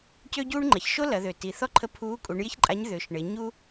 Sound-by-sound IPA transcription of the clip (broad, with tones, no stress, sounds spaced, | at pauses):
c ø˥ ɟ uː˥ ɳ ŋ͡ǃ ɐ˩ ç ʃ o˥ l ɐ˩˧ ð ø˩ t i˩ θ ɔ˥ ǃʰ ə˧˥ pʰ uː˧˥ kʼ u˩˧ ɳ j ɪ˥ ç ǃʼ a˧˥ ɲ ð ʏ˩˧ ʃ ɳ ɪ˩˧ ɲ u˥